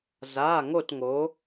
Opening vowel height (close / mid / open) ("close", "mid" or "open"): open